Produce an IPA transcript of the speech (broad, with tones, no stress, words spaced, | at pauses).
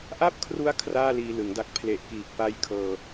ʔa˥˩p̚kʰru˦˥a̯ kʰraː˥˩liː˧lɯ˩˦ŋda˦˥k̚ pʰle˨˩ʔkiː˨˩k̚pa˦˥j kʰɤː˧